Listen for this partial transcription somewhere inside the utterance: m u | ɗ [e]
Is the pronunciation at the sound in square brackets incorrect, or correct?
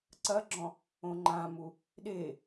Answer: correct